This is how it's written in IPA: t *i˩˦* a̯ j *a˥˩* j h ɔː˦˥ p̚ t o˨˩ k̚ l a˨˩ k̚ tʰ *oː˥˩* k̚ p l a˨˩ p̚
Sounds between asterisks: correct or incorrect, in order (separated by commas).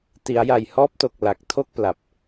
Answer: correct, incorrect, incorrect